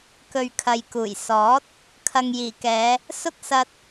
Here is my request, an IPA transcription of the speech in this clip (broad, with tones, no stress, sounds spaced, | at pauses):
k ɵ˨ ɥ kʰ ɐ˨ j k uː˨˩ j s ɔː˨˥ t̚ | kʰ ɐ˨ ŋ j iː˨˩ k ɛː˨˧ | s ʊ˥ k̚ s ɐ˧ t̚